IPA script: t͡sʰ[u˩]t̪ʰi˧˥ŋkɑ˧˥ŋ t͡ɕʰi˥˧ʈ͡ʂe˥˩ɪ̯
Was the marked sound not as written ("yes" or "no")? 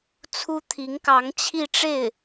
yes